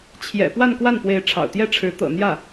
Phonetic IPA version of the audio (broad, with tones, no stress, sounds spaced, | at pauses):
t͡ɕʰ j ɛ̰˨˩ p w a˥˧ n k w a˥˩ n p w e˧˥ ɪ̯ ʈ͡ʂʰ ɑ̰˨˩ ʊ̯ t̪ j ɛ˥ ʈ͡ʂʰ ɻ̩˧˥ t̪ ɤ̰˨˩ n̪ j ä˥˩